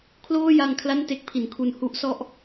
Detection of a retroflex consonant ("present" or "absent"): absent